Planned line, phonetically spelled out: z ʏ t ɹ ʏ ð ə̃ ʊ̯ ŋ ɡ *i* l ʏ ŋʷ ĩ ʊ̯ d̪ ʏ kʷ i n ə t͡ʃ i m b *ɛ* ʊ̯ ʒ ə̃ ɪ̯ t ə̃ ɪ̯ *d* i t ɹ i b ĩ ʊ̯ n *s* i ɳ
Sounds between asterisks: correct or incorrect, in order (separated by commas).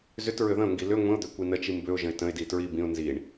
correct, incorrect, correct, incorrect